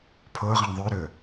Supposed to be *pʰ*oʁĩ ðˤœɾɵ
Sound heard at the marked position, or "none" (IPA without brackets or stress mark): pʰ